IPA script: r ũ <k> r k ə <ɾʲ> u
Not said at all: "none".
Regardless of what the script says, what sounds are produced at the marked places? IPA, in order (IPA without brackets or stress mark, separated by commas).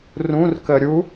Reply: none, ɾʲ